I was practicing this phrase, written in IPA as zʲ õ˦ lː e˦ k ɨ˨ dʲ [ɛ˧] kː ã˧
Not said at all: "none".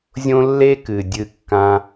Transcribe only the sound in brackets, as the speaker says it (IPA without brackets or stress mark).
ɨ˧